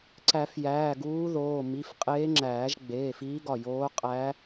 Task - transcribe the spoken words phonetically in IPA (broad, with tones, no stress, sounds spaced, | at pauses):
ǀ æ˨˩˦ f j æː˩˧˩ ɡ uː˧˥ ð oː˩˧˩ m i˩˧˩ f qʼ eː˧˥ ŋ͡ǁ æː˨˩˦ ʒ ɡ͡b eː˩˧˩ f iː˧˥ ɡ ɒ˧˩ j oː˧˥ qʼ æ˧˥